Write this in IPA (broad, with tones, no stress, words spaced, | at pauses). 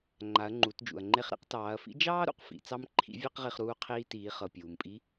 ŋ͡ǃa˩˧ɐ̯ŋ͡ǃu˩˧td͡ʒṵ˩ɐ̯ŋ͡ǃe˧χ ɾḭ˧qtɑː˩˧ɐ̯fḭ˧˥ d͡ʒɑː˥ ɾṵ˩qfḭ˩˧ t͡sɑ˥mǃʰḭ˧˥vʲɑ˥qʁi˧χ ɾuː˧ qʰiː˧tiː˩˧χɤ˩ pʲuː˩mpʼi˧˥